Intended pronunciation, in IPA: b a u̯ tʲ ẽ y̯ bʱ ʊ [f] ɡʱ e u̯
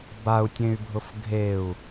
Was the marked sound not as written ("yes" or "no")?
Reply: no